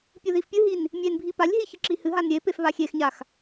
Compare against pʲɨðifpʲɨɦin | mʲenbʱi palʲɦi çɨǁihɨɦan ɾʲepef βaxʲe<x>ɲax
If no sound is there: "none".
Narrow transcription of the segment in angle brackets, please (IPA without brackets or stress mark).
x